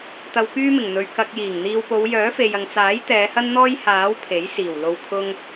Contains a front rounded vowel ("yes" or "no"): yes